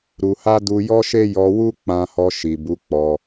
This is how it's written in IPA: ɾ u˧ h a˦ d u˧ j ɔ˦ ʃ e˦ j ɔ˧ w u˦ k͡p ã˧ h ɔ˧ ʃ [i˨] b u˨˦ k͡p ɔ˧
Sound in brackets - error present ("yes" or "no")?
no